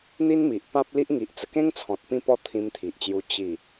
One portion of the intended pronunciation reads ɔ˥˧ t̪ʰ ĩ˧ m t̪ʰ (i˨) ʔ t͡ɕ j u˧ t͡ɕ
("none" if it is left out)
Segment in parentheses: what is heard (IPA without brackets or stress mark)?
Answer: i˨